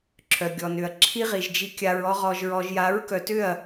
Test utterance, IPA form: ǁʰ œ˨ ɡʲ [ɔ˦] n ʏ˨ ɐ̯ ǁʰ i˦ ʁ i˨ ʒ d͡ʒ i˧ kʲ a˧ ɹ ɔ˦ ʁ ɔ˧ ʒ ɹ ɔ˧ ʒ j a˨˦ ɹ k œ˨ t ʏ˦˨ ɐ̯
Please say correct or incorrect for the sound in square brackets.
incorrect